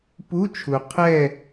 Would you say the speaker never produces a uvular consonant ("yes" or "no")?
no